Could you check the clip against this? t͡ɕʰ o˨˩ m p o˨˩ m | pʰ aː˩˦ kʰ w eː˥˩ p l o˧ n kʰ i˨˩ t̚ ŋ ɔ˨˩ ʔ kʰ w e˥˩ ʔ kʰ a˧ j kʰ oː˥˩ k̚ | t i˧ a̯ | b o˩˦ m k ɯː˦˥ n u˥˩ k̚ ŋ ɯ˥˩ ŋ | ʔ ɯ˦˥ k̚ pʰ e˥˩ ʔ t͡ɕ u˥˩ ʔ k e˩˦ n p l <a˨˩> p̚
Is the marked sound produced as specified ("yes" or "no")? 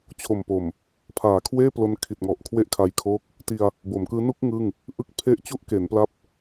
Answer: no